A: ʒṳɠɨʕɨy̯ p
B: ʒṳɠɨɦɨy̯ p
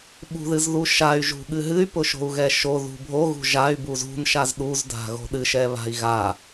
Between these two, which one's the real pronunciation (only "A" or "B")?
B